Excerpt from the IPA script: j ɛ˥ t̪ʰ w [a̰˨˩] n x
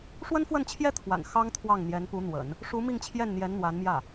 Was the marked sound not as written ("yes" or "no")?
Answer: no